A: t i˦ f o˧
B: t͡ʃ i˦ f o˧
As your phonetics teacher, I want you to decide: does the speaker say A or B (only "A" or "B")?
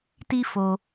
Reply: A